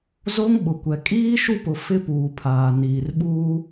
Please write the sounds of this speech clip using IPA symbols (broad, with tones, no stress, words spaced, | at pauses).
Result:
zo˦ŋ ɓʊ˨kʷɛ˨ kʼiː˦ʃu˦˨pʊ˨ fɪ˦ puː˨pʰaː˨niː˨rɓuː˦